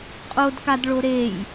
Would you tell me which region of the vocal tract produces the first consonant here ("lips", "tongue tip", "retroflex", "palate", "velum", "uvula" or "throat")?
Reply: uvula